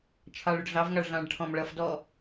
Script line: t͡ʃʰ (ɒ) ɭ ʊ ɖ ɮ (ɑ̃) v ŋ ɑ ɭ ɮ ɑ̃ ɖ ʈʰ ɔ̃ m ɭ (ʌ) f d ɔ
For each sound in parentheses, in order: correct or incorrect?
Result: incorrect, incorrect, correct

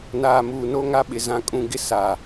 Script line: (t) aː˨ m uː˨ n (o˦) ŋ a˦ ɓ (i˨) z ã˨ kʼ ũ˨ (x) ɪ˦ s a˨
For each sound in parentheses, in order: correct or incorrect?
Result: incorrect, correct, incorrect, incorrect

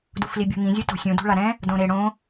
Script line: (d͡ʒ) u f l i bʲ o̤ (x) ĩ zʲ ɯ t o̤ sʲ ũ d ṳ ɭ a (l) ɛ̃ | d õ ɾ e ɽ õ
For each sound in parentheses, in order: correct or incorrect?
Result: incorrect, incorrect, incorrect

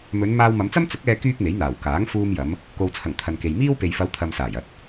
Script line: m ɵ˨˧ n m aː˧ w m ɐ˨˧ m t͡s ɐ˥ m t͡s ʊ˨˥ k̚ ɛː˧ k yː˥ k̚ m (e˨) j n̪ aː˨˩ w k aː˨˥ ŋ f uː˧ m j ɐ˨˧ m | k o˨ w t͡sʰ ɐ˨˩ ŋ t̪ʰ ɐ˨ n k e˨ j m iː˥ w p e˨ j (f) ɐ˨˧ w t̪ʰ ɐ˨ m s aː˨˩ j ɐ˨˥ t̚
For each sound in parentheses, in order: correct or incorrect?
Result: incorrect, correct

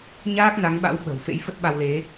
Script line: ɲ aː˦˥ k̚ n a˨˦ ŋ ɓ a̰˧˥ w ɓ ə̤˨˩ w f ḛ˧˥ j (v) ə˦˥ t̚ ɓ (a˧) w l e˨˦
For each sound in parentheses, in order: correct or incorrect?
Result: incorrect, correct

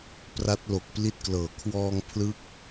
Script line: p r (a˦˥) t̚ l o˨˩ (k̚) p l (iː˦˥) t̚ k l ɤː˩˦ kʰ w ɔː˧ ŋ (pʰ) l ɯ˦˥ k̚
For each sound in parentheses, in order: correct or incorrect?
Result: correct, correct, incorrect, correct

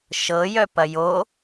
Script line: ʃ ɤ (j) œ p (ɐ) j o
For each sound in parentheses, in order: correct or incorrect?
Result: correct, correct

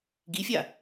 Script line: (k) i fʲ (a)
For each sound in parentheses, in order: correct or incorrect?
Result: incorrect, correct

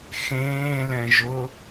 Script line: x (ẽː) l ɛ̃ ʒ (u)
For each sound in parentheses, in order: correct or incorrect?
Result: correct, incorrect

